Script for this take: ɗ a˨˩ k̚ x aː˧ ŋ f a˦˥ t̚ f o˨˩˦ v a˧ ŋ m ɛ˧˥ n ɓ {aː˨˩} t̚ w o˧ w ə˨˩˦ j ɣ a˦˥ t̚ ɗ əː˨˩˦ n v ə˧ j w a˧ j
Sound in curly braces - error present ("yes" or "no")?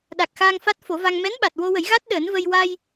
yes